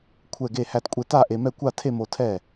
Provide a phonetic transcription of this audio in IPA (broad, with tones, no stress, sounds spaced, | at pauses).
kʷʰ ɛ˥˧ ɡ e˥˧ h æ˥˧ t kʷʼ e˧ t a˥˧ ʔ e˧ m ɛ˥˧ kʷ a˥˧ tʰ e˥˧ m o˧ tʰ ɛ˥˩